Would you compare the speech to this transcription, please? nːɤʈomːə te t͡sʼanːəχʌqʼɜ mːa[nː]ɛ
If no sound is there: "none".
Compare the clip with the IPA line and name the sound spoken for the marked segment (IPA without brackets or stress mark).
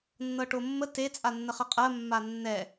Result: nː